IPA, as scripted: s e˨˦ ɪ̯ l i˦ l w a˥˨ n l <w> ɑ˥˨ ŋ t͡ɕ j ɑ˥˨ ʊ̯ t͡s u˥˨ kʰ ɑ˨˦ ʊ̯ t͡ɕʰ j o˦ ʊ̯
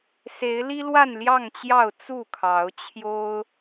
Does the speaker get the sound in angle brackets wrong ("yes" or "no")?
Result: yes